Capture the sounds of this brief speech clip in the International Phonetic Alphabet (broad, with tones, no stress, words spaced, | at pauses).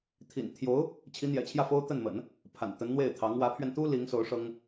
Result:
t̪ʰḭ˨˩nt̪ʰjo˧˥ʊ̯ | t͡ɕʰi˧˥n̪jɛ̰˨˩t͡ɕʰjä˥˩fo˥ʊ̯ t̪ə˥˩nmə̰˨˩˦n | pʰa̰˨˩n t̪ə˧˥nn̪we˥˩ɪ̯t̪ʰɑ˧˥ŋ wä˧˥pʰɥɛ˧n t̪u˥ li˧˥ŋso˧˥ʊ̯ ʂɤ˥ŋ